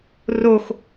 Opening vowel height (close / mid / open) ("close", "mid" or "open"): mid